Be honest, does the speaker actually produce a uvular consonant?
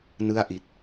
no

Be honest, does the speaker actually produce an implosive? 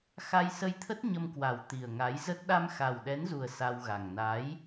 yes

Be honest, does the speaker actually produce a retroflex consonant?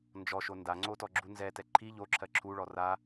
yes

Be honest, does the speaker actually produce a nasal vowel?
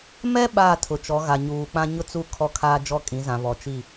yes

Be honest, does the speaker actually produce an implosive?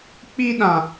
yes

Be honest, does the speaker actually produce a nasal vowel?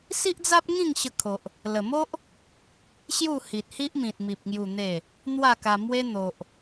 yes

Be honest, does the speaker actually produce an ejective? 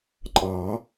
yes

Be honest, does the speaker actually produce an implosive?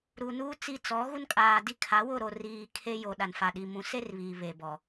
yes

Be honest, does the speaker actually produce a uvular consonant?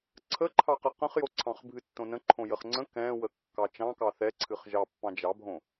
yes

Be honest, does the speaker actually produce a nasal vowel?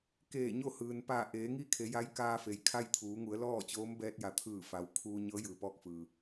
no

